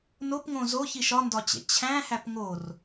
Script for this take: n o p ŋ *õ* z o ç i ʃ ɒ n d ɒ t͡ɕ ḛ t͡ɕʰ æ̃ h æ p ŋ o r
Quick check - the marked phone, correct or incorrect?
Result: correct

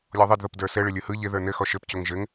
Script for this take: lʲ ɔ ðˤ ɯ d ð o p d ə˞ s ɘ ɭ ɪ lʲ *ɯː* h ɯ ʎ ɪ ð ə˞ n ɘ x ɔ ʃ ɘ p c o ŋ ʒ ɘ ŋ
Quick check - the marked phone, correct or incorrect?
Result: incorrect: ɯ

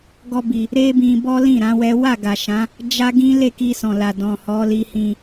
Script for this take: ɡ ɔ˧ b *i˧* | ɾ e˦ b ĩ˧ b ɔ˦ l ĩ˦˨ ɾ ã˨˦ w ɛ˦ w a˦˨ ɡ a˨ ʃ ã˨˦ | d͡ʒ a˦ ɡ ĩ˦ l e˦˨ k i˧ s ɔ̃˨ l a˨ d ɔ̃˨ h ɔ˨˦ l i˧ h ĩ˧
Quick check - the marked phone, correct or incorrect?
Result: incorrect: i˨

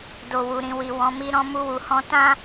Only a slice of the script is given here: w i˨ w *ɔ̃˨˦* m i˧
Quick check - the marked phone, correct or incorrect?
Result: correct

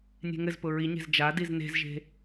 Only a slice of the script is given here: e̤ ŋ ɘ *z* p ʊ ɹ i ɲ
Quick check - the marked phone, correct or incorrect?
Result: correct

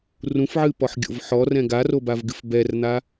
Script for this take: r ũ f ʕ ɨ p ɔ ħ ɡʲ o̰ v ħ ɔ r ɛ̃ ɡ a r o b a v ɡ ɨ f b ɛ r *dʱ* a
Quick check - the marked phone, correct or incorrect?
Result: incorrect: n̪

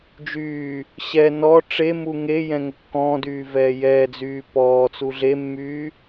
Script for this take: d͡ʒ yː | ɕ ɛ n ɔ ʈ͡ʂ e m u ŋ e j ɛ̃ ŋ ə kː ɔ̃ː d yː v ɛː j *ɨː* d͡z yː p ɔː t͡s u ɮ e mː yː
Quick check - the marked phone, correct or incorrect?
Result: incorrect: ɛː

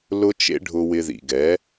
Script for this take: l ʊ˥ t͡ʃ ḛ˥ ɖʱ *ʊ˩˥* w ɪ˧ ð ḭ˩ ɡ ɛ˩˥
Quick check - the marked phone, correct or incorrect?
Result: incorrect: ʊ˧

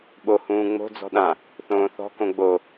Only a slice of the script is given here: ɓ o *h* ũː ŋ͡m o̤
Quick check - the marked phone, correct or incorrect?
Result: correct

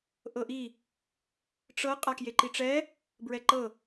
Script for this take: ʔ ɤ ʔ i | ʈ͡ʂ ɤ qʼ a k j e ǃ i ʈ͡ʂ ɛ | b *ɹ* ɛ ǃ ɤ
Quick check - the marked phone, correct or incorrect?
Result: correct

